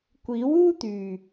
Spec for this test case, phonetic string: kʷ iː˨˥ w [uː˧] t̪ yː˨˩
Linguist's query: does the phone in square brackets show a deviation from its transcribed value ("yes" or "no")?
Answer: yes